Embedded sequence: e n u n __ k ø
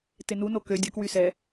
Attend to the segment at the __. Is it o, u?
o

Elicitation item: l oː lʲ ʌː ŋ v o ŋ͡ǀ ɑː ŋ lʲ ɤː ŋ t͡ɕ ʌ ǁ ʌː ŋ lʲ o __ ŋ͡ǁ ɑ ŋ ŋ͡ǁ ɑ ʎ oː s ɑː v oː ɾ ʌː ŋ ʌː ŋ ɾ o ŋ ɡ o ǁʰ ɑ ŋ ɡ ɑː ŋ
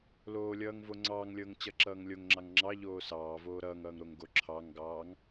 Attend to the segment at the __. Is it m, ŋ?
ŋ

